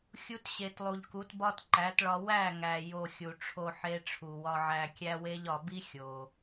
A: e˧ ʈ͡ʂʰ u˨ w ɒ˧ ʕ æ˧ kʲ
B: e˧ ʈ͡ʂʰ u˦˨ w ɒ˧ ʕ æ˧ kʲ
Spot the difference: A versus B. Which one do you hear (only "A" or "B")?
A